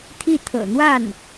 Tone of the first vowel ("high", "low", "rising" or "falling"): falling